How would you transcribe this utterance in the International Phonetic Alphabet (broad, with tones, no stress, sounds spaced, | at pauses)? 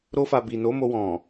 ɾ o˧ f a˨ b i˨ n o˨˦ m o˧ w ɔ̃˨